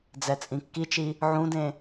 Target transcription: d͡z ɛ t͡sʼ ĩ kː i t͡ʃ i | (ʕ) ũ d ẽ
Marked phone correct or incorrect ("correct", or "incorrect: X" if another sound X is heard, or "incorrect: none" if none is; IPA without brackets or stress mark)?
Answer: correct